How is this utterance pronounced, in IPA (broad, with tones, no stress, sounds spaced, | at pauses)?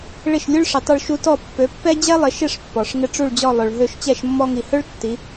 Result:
ɭ ɪ˥˩ ʃ lʲ u˥ ɭ ʂ ɪ˩˥ tˤ u˧ ɭ ʃ u˧ t ɔ˥˩ pː ø˩˥ pː ɛ˥ d͡ʑ ɛ˥ lˠ ɪ˩˥ ʃ ɪ˥˩ ʂ pː ɔ˩ ʂ ŋ ɪ˧ ʈ͡ʂ u˥˩ ɭ d͡ʑ ɔ˥˩ lˠ ø˩ ɭ ɦ ø˥˩ ʃ t͡ɕ ɛ˥˩ ʃ mː ɔ˧ ŋ i˩ h ø˥ ɭ tː i˩˥